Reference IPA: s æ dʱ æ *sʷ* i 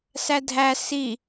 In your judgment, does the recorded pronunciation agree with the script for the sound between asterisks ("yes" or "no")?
no